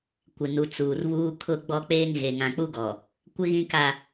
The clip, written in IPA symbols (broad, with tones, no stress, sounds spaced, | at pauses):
kʷ ɪ˨ n u˨ t͡s uː˨ r β uː˦ kʰ ʊ˦ ɡ͡b ɔ˦ k͡p eː˦ ŋ ɣ e˨ ŋ ã˨ k͡p u˦ ɡ ɔ˨ | kʷ ɪ˦ ɣ ĩ˦ k a˦